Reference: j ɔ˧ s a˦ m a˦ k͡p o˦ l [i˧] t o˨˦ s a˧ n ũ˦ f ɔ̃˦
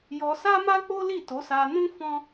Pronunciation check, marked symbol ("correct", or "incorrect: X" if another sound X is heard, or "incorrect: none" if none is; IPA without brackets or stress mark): incorrect: i˦˨